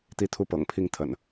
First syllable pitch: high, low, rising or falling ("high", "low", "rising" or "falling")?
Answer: high